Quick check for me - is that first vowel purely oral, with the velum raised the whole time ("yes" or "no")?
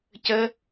yes